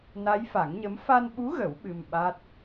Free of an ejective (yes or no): yes